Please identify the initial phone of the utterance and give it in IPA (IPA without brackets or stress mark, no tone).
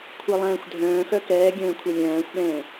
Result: kʷʰ